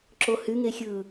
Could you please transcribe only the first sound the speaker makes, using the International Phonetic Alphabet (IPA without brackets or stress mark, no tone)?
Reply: ǁ